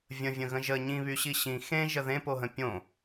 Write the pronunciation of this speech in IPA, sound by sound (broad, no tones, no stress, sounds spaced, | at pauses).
vʲ ə̃ vʲ ə̃ ɣ ə̃ ʒ ə ɲ ĩ β y ɕ i ɕ ĩ x ẽ ʒ ə ð ẽ p o ɦ ə̃ pʲ õ